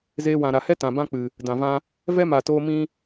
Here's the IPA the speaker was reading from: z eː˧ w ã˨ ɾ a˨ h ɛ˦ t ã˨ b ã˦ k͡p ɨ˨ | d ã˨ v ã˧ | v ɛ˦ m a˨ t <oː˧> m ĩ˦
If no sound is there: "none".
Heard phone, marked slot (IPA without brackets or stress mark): oː˧